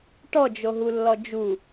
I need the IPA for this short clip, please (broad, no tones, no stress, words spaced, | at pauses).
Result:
ʈɔd͡ʒoɦulːɔ d͡ʒu